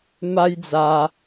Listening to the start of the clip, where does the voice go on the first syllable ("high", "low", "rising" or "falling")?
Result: high